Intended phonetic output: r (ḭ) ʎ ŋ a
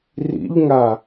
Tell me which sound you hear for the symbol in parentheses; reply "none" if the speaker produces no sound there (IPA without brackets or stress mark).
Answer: ḭ